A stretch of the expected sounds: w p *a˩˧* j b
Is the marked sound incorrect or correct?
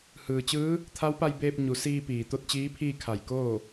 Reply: incorrect